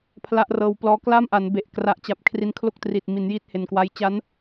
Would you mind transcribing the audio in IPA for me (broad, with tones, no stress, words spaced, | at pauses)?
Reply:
pʰla˦˥ʔrɤː˧wplɔː˦˥ kla˥˩mʔa˩˦nbe˨˩ʔ kra˨˩ʔt͡ɕa˨˩p̚ kʰri˧nkʰlo˦˥k̚triː˨˩t̚ mi˩˦njiː˥˩t̚he˨˩nkwa˦˥j t͡ɕa˦˥n